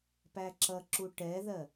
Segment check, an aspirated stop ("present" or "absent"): absent